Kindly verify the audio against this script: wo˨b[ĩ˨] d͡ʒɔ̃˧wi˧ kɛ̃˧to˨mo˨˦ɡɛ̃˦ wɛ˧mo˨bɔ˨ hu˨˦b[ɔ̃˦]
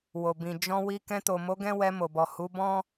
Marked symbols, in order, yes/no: yes, yes

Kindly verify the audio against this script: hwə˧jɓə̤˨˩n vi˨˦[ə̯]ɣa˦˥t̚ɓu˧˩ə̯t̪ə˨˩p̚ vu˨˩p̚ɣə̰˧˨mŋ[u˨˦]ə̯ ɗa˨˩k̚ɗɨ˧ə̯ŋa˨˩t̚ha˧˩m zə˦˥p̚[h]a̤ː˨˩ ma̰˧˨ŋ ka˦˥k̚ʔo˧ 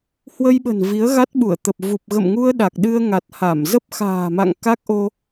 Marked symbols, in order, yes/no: yes, no, no

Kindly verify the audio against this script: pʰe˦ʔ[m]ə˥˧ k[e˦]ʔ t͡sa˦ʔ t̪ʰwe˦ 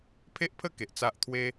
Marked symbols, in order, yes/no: no, no

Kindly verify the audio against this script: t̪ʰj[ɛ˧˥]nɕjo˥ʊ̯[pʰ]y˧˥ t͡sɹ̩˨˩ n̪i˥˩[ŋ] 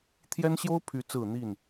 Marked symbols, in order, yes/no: no, yes, no

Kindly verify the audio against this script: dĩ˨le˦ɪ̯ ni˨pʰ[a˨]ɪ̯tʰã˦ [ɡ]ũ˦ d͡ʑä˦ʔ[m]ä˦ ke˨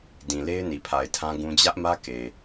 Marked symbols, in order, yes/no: yes, yes, yes

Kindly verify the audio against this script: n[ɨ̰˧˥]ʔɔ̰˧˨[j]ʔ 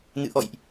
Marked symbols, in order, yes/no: no, yes

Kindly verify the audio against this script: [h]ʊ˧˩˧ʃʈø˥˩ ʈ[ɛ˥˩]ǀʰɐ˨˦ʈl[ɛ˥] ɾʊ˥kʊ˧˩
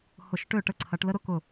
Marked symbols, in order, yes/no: yes, no, no

